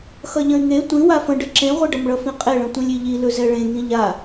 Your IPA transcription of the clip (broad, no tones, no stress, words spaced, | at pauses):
xʌʎə̃y̯ŋe tʷĩ wafə̃ɖə ǁẽʁʷeɖʌmɭʌ fĩqʼeɭə̃ tʷĩlʲiʎi lɵzɛɭẽŋĩ ʎa